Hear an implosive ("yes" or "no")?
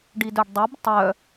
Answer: no